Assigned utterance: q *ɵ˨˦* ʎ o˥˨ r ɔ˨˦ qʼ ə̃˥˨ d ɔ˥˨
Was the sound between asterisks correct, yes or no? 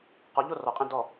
no